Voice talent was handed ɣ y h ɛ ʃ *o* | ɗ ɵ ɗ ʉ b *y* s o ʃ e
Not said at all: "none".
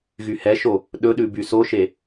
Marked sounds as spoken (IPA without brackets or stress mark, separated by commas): o, y